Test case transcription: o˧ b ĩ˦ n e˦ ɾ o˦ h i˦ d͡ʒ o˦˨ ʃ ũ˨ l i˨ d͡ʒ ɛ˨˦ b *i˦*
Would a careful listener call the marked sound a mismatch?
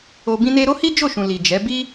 no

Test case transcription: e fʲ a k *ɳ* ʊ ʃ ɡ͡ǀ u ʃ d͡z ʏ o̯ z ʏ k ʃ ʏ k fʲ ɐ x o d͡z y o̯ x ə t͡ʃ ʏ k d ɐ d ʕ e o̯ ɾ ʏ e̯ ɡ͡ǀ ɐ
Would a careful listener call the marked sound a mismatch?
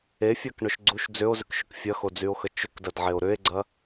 no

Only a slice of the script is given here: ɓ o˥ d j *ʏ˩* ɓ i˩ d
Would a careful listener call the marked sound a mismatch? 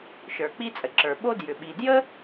no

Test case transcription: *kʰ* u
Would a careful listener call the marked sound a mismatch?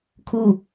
no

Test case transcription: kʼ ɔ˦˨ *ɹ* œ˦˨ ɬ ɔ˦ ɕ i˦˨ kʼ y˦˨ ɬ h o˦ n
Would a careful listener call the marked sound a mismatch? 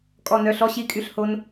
yes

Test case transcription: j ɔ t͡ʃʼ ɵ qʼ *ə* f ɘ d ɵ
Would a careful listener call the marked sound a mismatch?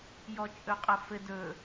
no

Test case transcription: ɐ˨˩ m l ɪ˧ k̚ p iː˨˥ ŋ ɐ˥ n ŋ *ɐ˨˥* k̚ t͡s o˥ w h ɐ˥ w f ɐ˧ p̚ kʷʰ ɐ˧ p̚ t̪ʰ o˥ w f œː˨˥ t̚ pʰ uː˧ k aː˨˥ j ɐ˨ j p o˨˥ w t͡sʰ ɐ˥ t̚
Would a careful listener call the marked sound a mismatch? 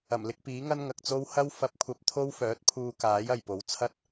yes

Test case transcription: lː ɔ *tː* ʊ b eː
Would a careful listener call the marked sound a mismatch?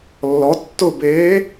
no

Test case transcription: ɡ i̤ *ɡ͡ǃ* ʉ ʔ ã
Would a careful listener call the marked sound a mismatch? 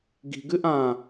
yes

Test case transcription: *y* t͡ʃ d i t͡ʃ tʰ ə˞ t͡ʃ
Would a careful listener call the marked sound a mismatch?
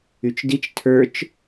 no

